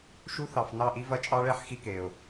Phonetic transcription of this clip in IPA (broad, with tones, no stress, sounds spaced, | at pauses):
ʃ u˦ θ ɑ˨ f n ɑ˦˨ ʔ i˦ v ɐ˦ t͡ʃʼ ɑ˦ ɭ ɛ˦ ħ x i˦ k e˨ ʊ̯